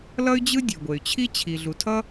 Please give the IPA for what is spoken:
lʌ˥y̯d͡ʑɯ˥ dʲe˨ɡʷe˨y̯t͡ɕʰi˥ t͡ɕʰi˨ɮu˨tʰʌ˥

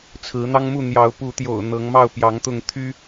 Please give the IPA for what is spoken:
t͡sʰɹ̩˨˦n̪ɑ˦ŋmu˥˨ n̪jɑ˨˦ʊ̯pu˨˦t̪jo̰˨˩ʊ̯ n̪ɤ˨˦ŋmɑ˥˨ʊ̯ pjɑ˨˦ŋt̪ʊ˥˨ŋ t̪ʰy˦

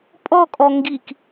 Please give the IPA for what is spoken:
pʼɔkʼɔ ŋɡik

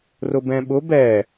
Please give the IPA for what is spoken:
rʊbɛ̃ɓʊb ɛ

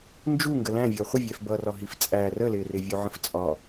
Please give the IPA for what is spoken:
nd͡ʒu ŋɡəlæ̃vʲʌː χʷəvʲɛf bʌːrɒɦift͡sʼæː rəlɪːrɪ vʲuʕə̃ft͡sʼɒ

